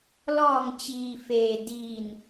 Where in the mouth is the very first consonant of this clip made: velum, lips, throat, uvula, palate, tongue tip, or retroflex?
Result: tongue tip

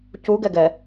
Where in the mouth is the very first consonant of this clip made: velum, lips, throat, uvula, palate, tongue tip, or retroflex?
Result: palate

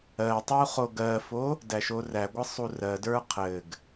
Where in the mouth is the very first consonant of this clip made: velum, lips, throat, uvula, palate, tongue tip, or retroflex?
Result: tongue tip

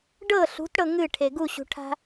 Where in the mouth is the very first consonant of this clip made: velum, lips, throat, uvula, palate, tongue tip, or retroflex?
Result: retroflex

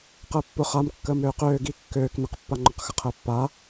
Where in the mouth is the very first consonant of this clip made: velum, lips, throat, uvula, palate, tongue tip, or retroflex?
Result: uvula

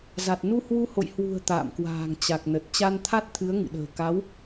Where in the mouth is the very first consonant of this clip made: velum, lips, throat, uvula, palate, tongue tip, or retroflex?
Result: tongue tip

